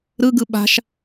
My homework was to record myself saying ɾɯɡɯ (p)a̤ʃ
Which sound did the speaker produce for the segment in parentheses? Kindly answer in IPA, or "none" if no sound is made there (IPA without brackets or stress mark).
ɓ